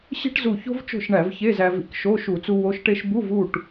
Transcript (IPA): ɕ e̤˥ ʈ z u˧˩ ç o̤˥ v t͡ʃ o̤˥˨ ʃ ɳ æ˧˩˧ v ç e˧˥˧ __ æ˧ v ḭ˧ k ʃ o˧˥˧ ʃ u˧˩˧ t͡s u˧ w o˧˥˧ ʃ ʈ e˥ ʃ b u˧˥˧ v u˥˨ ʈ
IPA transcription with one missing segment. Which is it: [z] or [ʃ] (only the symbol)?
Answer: z